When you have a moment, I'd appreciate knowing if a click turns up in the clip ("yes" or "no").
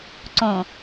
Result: yes